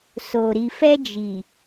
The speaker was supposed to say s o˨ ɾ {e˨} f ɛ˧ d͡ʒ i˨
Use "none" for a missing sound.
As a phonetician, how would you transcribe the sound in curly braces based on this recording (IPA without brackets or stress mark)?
i˨